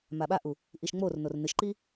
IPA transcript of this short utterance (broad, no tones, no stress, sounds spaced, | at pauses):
m a ɓ a ʔ u | ʔ i ʃ ŋ͡m o r n o r n ɨ ʃ ǃ i